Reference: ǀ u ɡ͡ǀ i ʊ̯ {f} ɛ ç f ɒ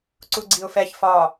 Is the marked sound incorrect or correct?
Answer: correct